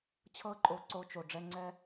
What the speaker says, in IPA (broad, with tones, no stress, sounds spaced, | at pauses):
t͡ɕʰ ɤ˦ ǃʼ o˧ ǀ o˧ t͡ʃ o˨ ɖ͡ʐ ɛ˧ ŋ͡ǀ ɛ˦